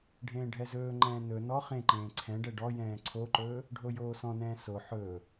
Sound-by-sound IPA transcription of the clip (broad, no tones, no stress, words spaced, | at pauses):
ɖʱẽːɖʱɛzɵːŋ͡ǃɛ̃ː nɵ nɔ χẽǃẽː ǀʰɛ̃ ɖɛɖɔjɛ̃ː ǀʰoǃɵː | ɖʱojoːsɔ̃nɛ̃ː so ħɵː